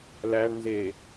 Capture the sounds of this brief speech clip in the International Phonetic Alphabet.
l æ ɳ n z e

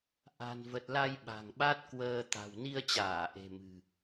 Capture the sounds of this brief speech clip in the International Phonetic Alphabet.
ʔ a̤˨˩ n v ə˨˩ t̚ l a˧ j ɓ a̤˨˩ ŋ ɓ a˦˥ t̚ k w əː˧ t̪ a̤˨˩ w n i˧ ə̯ t͡ɕ aː˧˩ ʔ e̤˨˩ m ɨ̤˨˩

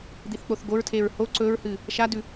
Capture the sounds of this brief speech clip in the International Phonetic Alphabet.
d̪ i θ k͡p o θ ɡ o ɹ tʰ e ɹ h o ǀ ɵ ɹ h ɨ | ʃ a d ʉ

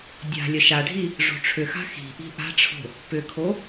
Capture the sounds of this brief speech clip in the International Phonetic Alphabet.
dʲ a̤ lʲ ə ʃ a ɖʱ i | ʐ o̤ ʈ͡ʂʰ ʏ x a̤ x i̤ ʔ i̤ ʔ a̤ ʈ͡ʂʰ o̤ | p ʏ kʰ o

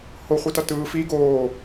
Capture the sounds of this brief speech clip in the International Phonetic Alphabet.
h o χʷ i t ʌ t ɯː f i ɡ oː

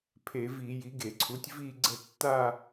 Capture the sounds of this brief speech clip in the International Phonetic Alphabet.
pʰ e˧˩˧ v i˧˩˧ j i˩˥ ɡ e˧˩˧ ǀʰ u˩˥ tʲ v i˥˧ ɡ͡ǀ ə˥˧ tː a˥˧

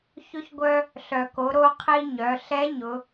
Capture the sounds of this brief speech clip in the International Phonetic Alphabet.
ç ʊ˧ ç ɡʷ œ˧ | ɬ œ˩ k o˩˧ ɾ o˧ qʰ i˧ ɲ œ˩˧ ɬ ɛ˧˥ ɲ ʊ˩˧

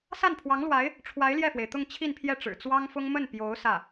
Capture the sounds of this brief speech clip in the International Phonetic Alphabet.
s a˥˩ n pʰ w ɑ˧˥ ŋ l w a˧˥ ɪ̯ | ʈ͡ʂʰ w a˧˥ ɪ̯ l j ɛ˥˩ f w e˩ ɪ̯ t̪ ʊ˥˧ ŋ t͡ɕʰ i˥˧ n pʰ j ɛ˥˩ ʈ͡ʂ ɻ̩˨˩ t͡s w ɑ˥ ŋ f ʊ˥ ŋ m ə˥˩ n p j o˧˥ ʊ̯ s ä˥˩

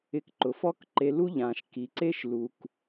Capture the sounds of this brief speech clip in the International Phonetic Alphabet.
ɪ˧ k ǃ ʊ˨ f ɔ˦ k ǃ e˧ l u˦ ʎ ãː˨ ʃ k i˨ ǀ e˦ ʃ l u˨ k

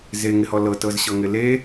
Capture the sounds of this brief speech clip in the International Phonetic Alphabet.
z e ŋ ɪ h ɔ l ɤ t ɤ z ɕ ɤ ŋ ɪ l e

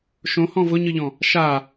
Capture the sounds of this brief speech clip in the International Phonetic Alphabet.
ʃ õ h ɔ̃ v ʊ ɲ ɯ ʎ ɔ̃ | ʃ a

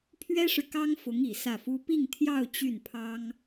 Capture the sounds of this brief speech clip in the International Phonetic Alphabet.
pʰ ɥ ɛ˥ ʂ ɻ̩˨ k ɑ˥ ŋ f ʊ˧˥ ŋ i˨˩ s ä˥˩ f u˥ p i˥˧ ŋ t̪ʰ j ɑ˥˧ ʊ̯ t͡ɕ y˥˩ n pʰ ɑ˥ ŋ

